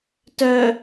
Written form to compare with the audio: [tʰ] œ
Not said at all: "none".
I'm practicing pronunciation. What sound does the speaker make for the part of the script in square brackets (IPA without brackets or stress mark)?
t